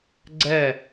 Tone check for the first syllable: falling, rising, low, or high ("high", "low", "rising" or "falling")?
falling